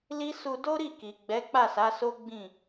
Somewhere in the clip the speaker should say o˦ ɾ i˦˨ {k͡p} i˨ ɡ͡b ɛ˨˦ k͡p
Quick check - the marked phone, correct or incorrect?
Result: incorrect